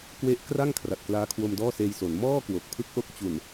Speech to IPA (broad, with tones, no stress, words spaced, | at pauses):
kwe˦˥ʔkra˥˩ŋ kʰra˨˩t̚klaː˦˥kʰwo˧m dɔː˥˩seː˧jso˩˦n mɔː˥˩ kwo˨˩k̚ pʰɯ˦˥k̚ʔo˦˥k̚t͡ɕu˨˩n